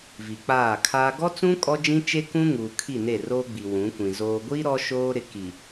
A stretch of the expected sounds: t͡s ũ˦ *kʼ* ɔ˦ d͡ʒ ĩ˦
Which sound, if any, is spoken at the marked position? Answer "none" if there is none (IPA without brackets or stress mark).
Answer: kʼ